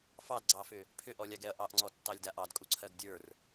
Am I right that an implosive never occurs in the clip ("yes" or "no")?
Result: yes